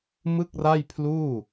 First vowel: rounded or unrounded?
unrounded